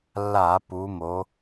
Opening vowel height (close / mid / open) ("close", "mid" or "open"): open